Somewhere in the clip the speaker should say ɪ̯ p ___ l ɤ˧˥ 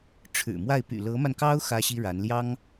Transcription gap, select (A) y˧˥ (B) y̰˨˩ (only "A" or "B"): B